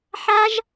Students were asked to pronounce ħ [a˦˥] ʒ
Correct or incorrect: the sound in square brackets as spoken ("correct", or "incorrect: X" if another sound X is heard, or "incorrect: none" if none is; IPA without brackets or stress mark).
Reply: correct